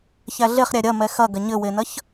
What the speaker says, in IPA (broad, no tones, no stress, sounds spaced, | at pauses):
ç æ ɮ e χ ɾʲ æ ɾʲ ɐ m ɛ x ɐ ɡ ɐ ɲ ɘ w e n ɐ ç